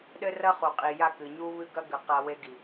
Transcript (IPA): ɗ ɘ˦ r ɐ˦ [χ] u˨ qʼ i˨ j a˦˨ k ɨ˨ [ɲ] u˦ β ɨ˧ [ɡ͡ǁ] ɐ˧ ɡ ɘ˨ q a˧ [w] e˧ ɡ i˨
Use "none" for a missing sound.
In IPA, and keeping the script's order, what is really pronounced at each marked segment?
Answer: χ, ɲ, ɡ, w

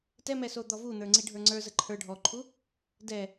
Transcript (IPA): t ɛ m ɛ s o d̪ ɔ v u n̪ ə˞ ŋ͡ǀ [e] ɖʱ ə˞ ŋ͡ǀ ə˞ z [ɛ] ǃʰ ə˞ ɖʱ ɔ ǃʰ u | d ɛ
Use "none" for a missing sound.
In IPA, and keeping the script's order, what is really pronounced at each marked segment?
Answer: i, ə

